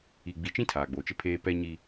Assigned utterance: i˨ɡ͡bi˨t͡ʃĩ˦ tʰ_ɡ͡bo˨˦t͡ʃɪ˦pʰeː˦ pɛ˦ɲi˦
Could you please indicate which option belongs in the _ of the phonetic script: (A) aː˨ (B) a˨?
A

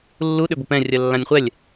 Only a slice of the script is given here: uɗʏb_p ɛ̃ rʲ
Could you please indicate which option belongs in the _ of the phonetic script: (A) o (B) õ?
A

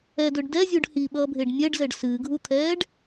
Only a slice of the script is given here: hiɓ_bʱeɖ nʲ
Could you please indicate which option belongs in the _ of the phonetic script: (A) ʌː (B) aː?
A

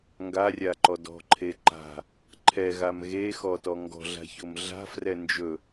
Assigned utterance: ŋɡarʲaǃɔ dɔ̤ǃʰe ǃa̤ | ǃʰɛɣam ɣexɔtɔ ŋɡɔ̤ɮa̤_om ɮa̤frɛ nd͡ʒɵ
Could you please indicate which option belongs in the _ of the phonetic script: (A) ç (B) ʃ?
A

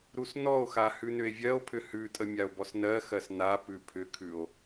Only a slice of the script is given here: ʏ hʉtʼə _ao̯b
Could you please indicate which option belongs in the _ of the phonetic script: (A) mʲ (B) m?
A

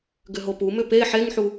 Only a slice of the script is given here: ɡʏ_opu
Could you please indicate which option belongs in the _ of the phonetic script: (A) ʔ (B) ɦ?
B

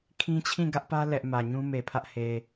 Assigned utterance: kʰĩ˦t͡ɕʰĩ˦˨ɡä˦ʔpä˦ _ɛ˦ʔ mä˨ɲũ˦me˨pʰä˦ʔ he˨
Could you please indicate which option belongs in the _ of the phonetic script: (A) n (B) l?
B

